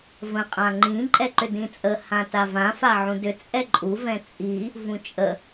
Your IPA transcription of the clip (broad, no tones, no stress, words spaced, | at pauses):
və̃ qʼãŋ͡ǃĩ ǃʼɛǃʏdĩt͡sʼə hãtavã faʕũdʏ t͡sʼɛǃʼu vɛ̃t͡sʼi | vũt͡ʃʼə